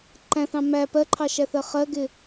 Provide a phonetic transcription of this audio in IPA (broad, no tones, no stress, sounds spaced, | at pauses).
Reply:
ǃ æ̃ θ ɑ̃ m æ p ɜ ǃʰ ɑ ʃ æ θ ɜ χ ɜ ɡ ɪ